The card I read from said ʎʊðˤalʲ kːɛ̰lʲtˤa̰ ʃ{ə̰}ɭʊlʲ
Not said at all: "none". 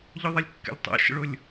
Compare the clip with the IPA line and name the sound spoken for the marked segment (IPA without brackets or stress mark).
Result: ə̰